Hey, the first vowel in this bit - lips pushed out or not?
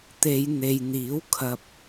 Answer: no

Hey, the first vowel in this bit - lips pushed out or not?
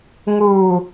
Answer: yes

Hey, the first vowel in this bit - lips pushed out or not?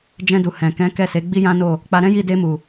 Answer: no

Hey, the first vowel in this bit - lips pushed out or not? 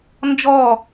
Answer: yes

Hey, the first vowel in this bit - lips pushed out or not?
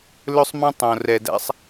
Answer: yes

